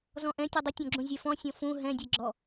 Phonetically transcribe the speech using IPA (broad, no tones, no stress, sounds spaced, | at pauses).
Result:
z ɔ̃ ʔ ɛ̃ tʲ œ dˤ ə tʲ ɔ̃ ɡ͡ǁ ũ zʲ ɛ f ɔ̃ sʲ ɔ̃ f ũ ɦ ɛ̃ dʲ ɛ ɡ͡ǁ ɔ